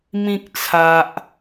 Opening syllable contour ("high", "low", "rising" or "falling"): high